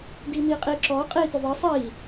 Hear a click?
yes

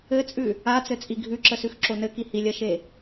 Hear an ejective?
yes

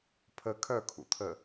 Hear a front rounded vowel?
yes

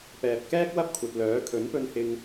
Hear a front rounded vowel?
yes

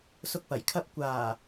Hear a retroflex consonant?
no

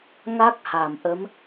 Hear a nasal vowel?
no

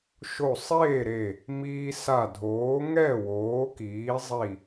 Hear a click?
no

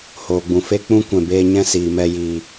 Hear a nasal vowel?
yes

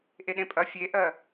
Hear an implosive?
yes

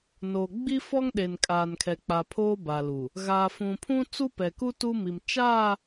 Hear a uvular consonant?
no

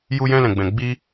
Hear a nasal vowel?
yes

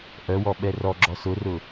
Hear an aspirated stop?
no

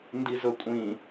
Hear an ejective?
yes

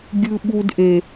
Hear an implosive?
yes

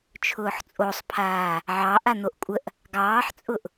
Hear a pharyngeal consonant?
yes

